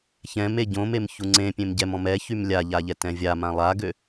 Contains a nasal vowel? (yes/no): yes